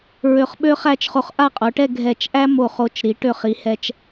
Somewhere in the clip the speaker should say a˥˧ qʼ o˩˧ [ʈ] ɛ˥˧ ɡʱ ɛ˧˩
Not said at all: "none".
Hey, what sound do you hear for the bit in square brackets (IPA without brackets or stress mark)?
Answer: ʈ